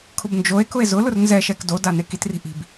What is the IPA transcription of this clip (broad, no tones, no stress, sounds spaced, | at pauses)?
kʰ ʊ b n d͡ʒ o e̯ k ʊ e̯ z ʊ l ʊ r n z ɛ ʃ ɛ k d o d a n e k i t r i̤ ʔ i̤ b